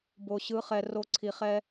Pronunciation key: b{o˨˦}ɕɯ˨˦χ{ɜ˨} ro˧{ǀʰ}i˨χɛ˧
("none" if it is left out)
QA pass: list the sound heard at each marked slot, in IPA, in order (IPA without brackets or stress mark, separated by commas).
o˨, ɛ˨, ǀʰ